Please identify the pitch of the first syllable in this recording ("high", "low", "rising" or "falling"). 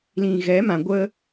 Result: low